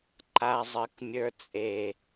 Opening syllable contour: high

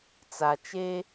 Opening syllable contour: low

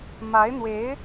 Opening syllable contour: rising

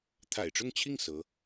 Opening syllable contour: low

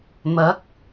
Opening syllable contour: rising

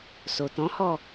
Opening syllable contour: low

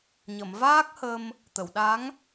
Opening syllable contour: low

